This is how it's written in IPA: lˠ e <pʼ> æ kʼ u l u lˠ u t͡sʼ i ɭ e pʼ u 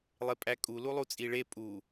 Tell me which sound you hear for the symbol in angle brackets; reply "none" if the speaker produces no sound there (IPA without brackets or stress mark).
pʼ